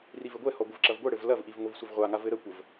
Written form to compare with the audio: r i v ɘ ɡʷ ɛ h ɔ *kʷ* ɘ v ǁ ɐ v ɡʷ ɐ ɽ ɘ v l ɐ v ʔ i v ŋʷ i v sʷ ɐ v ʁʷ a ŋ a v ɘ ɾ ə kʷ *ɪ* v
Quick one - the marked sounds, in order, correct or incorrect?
incorrect: ɡʷ, incorrect: ə

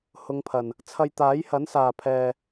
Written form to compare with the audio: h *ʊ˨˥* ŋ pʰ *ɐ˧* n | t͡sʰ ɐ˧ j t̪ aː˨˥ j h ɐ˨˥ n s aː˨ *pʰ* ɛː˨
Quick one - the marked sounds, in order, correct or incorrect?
incorrect: ʊ˨˧, incorrect: ɐ˨˩, correct

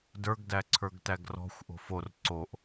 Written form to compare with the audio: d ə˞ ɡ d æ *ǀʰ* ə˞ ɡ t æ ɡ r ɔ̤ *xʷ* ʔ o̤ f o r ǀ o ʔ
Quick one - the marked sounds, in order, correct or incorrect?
correct, correct

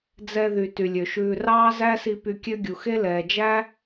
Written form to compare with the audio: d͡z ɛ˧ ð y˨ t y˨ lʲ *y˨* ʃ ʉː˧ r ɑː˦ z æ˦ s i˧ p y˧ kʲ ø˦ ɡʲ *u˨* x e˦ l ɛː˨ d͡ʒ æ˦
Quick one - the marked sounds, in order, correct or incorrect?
incorrect: ø˨, correct

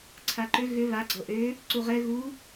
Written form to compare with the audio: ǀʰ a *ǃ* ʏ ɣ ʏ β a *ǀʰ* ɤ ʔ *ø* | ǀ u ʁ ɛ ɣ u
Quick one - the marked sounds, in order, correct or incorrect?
correct, incorrect: ɡ͡ǀ, correct

